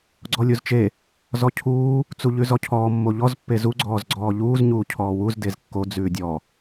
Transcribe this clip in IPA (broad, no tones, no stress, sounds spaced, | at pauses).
ɡ͡ǀ ɔ lʲ u z t͡ʃ e | z ɔ cʰ uː | t͡s u ʎ ʉ z ɔ cʰ ɔː mː o ʎ ɔ z pː e z u ɡ͡ǀ ɔː z ɡ͡ǀ ɔː ʎ uː z ɲ uː cʰ ɔː w u z d e z kː o d͡z ʉː dʲ ɔ